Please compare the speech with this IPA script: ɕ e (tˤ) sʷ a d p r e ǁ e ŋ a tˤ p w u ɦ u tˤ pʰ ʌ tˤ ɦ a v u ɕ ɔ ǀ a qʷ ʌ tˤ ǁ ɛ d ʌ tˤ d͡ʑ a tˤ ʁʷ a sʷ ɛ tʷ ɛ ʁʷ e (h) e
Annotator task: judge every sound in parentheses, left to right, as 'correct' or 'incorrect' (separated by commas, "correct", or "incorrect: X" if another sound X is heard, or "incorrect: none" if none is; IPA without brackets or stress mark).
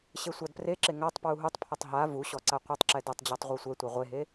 incorrect: none, incorrect: ɦ